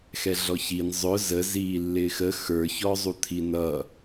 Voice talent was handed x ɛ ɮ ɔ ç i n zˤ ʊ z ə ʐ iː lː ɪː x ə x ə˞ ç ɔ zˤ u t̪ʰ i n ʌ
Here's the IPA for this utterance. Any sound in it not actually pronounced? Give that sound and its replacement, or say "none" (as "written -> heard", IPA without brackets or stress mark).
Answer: ʐ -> z